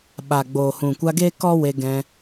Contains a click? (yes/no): no